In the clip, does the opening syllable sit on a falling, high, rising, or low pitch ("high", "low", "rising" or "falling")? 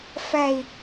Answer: falling